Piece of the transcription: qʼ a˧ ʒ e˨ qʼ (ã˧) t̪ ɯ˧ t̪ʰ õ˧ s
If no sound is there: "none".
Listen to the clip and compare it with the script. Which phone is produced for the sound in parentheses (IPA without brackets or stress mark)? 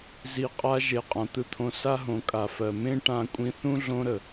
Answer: ã˨